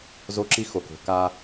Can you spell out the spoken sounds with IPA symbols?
zo˦ǁi˦xo˨ko̤˨ ka˦

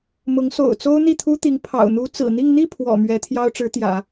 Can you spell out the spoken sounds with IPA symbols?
mʊ˧˥ŋso̰˨˩ʊ̯t͡so˥ʊ̯ n̪i˥˩t̪ʰu˥t̪i˧˥ŋ pʰɑ̰˨˩ʊ̯n̪u˧˥ t͡sɹ̩˨˩n̪i˥˧ŋ n̪i˥˩pʰwɔ̰˨˩ mɥɛ˧˥t̪ʰjɑ˥ʊ̯ ʈ͡ʂɻ̩˧˥t̪jä̰˨˩˦

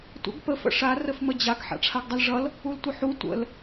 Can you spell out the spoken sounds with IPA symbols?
tʷə̰ɡ pəf ə̰ʂa rəfməd͡ʑaɡ ħa̰ʈ͡ʂʰaɡdˤʌlʐʌl | ultʷəħu tʷə̰l

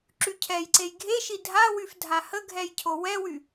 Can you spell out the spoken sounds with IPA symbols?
ǁycʰɛjǀej ɡʱeʃi dʱawyf dʱahəɡʱɛj cʰowɛwy

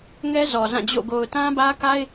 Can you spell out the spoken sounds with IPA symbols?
ŋɛ˦ zɔ˨zã˦˨d͡ʑo̰˦˨ ɡo˨ʊ̯tã˦bä˦ ka˦ɪ̯

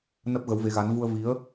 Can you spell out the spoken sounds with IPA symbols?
nə˦˥p̚ɣə˨˦wve˨˦ɣa˨˦n vu˧ə̯vi˨˦ə̯

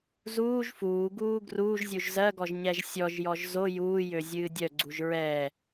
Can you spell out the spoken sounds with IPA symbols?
zuːʒ fuːɡuː ɡruːʒzʲuʒ zɜɡɔʒ ɲɛʒsʲɔʒjɔʒ zo juːjø zʲɨːdʲœɡ͡ǀuʒ ɹɛ

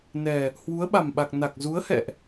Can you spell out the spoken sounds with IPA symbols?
nɛ˨˩ | hwu˨˦ə̯ɓa˨˩mɓa˨˩k̚ na˨˩k̚zu˨˦ə̯hɛ̰˧˨ʔ

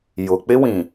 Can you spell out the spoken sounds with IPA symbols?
jʊ˨k͡pɪ˦wĩ˨

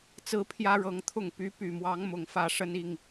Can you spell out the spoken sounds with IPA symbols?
t͡sɹ̩˦pʰjä˦ɻɤ˨˦ŋt̪ʰʊ˥˨ŋ py˨˦py˨˩mwɑ˨˦ŋ mʊ˨˩ŋfä˥˨ ʂə˦ni˥˨ŋ

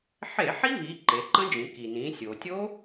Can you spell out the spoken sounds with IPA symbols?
ħe˧˩˧ħi˦˥vi˩˧ ǃe˩˧ǃə̃˦˥d͡ʒĩ˩˧ ki˩nĩ˩˧ sʲo˩tʲo˦˥

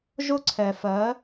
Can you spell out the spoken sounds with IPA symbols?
ʒʊ˥ǀʰɛ˧fɜ˧˥

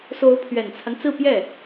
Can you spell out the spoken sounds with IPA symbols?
so˧˥ʊ̯pʰɥɛ˨˩nt͡sʰa˦n t͡sɹ̩˥˧pjɛ˥˩

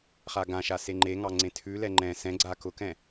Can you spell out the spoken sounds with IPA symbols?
χaɡãʃa seŋ͡ǃeŋɑ ŋ͡ǀẽtʰʉlɛ ŋ͡ǃɛ̃ sɛ̃ɡ͡ǀa kʊkɛ̃

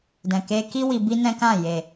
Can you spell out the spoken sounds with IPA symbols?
dɛ̃˨ke˧ki˦ wi˧bi˦nɛ̃˦kã˦˨ je˨

